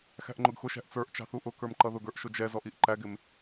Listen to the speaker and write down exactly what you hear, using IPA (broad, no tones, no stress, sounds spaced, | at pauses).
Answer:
x æ̤ ʔ ŋ͡ǃ ʊ ɡ x ʊ ʃ æ̤ ʔ t͡s ə˞ ʔ t͡ʃ ɑ̤ θ u ʔ ʊ k ə˞ m ǃ ʌ ð ʊ ɡ ə˞ ʔ ʃ ʊ d͡ʒ ɛ z ɔ ʔ i ʔ ǃ æ ɡ ɪ m